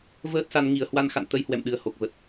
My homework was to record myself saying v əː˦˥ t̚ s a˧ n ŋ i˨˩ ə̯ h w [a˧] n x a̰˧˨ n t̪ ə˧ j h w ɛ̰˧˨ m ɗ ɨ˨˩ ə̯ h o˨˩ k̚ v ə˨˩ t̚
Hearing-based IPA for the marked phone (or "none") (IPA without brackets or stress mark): a˧